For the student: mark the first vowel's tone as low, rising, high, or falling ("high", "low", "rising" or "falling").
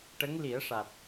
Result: rising